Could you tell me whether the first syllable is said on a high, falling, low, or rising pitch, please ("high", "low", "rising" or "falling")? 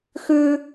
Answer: high